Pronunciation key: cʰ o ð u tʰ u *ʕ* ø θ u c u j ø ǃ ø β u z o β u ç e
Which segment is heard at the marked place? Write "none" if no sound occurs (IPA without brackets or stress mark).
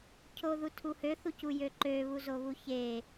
h